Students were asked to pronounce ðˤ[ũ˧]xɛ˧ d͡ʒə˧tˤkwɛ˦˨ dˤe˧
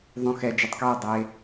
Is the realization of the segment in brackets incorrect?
no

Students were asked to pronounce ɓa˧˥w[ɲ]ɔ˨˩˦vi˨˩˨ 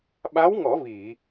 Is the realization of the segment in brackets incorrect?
yes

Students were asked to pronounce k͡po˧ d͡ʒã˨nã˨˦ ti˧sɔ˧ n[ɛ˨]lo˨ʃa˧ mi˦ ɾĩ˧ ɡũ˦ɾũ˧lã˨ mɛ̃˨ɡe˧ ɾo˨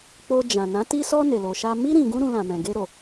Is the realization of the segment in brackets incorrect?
yes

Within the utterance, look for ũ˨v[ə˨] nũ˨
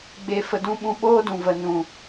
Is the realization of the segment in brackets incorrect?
no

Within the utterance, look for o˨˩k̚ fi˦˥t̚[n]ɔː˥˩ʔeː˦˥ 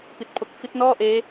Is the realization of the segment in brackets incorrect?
no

